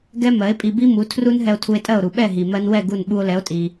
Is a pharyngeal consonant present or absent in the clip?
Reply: absent